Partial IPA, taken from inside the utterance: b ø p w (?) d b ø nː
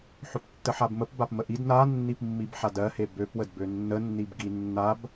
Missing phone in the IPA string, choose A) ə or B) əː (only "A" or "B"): A